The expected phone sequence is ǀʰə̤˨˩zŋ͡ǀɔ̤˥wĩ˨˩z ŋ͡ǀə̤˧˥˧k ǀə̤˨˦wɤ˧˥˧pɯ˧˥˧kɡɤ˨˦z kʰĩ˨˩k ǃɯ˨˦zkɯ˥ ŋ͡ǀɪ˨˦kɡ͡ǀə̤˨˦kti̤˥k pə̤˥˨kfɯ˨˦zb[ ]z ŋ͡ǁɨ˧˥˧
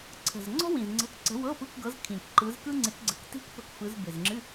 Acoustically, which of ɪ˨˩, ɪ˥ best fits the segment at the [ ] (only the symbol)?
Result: ɪ˨˩